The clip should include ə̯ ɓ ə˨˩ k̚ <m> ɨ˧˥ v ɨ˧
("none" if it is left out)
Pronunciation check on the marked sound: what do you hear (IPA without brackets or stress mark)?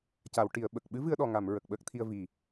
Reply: ɓ